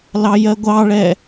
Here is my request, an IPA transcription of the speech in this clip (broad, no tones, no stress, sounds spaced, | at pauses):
l ɑ j ɜ ɡʷ ɑ ɭ ɛ